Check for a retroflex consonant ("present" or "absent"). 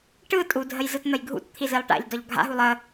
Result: present